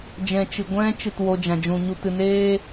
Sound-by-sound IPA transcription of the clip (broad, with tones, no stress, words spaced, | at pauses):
d͡ʒɛ̃˧t͡ʃɨ˨ ɡʷɛ̃˦ t͡ʃɨ˦˨two˧d͡ʒã˨ d͡ʒũ˨ɲu˧ tɨ˨neː˦